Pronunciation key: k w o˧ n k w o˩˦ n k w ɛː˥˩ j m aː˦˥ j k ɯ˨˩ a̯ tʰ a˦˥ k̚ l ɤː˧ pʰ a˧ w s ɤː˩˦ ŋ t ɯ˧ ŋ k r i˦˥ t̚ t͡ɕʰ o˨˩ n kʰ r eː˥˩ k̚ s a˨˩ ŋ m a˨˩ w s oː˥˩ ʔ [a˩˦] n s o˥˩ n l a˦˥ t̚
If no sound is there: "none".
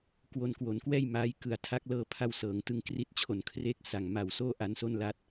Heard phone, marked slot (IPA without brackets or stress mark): a˧